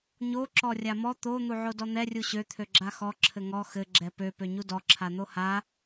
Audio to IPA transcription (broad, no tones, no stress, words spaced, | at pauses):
ɲo ǁɔrʲamɔ t̪o n̪uʕodɔn̪ɛ rʲuɕø t̪ʰøɡ͡ǁaxɔ ǁʰɘŋɔ xɘ ɡ͡ǁɛpø pøɲudɔ ǁʰan̪oha